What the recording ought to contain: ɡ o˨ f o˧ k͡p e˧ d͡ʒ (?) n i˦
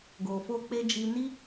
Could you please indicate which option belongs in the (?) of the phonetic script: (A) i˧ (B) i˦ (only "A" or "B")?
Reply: A